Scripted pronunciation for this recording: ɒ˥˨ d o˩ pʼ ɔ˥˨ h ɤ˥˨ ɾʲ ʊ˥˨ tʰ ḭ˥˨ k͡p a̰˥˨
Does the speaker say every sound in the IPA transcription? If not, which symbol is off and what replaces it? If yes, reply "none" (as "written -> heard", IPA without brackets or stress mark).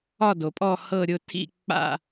none